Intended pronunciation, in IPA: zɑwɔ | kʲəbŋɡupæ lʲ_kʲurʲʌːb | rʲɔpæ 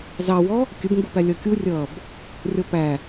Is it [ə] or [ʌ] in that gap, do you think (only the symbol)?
ʌ